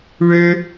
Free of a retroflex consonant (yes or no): no